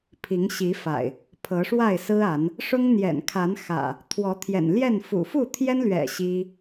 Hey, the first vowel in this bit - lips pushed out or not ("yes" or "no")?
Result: no